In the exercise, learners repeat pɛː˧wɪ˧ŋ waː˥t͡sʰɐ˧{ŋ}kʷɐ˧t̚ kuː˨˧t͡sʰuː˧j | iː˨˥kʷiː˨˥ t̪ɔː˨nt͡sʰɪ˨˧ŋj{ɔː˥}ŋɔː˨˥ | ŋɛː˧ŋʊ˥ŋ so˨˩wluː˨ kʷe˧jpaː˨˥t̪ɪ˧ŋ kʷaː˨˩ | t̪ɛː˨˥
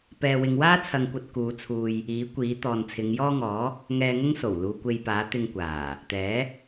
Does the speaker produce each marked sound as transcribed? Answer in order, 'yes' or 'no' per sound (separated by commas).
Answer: yes, yes